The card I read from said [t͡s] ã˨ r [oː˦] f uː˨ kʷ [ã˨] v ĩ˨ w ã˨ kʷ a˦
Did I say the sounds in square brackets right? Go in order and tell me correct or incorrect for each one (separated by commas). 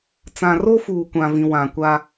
correct, incorrect, correct